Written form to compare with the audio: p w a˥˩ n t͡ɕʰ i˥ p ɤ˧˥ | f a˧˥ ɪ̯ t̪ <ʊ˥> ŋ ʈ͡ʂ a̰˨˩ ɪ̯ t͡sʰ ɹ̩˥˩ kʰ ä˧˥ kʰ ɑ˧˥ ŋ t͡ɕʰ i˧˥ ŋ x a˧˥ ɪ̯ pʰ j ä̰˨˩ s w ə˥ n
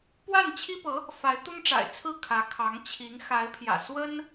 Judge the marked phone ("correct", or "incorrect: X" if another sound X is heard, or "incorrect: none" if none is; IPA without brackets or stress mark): correct